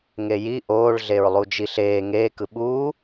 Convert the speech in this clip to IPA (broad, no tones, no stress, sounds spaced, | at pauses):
ŋ e j i ʔ oː ɭ ɮ e ɹ lˠ u d͡ʒ i ɬ eː ŋ eː k ɯ ɓ uː